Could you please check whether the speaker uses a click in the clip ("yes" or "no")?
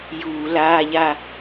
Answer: no